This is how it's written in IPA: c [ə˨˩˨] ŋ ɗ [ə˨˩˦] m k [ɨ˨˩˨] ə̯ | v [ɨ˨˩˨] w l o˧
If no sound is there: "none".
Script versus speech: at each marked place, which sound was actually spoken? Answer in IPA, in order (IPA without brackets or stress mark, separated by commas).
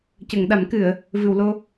ə˨˩˨, a˨˩˦, ɨ˨˩˨, ɨ˨˩˨